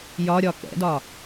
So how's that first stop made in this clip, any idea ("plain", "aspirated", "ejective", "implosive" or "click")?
plain